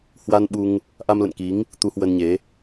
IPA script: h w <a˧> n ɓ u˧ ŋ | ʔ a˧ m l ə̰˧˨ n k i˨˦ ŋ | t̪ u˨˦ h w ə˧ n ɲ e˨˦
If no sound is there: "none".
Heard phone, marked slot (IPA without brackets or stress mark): a˧